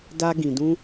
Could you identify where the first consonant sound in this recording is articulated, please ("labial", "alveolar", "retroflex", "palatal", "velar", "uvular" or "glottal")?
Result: alveolar